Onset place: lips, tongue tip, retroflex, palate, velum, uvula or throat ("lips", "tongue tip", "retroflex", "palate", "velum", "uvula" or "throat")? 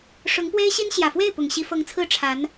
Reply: retroflex